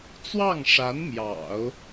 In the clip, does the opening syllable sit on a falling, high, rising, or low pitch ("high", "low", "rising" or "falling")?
falling